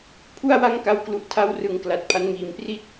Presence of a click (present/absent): absent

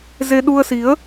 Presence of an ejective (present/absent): absent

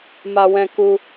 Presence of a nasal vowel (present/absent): present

